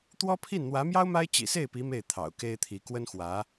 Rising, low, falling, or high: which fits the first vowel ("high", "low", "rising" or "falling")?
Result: high